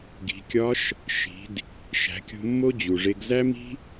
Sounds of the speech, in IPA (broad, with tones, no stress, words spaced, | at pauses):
ɡi̤˩˧kʲɒ˧˥ʃ | ʃi̤˩˧d | ʃæ̤˩˧kʲo̤˧mːo˥ d͡ʑu˩ʐe˧ɡ zæ˥mi̤˥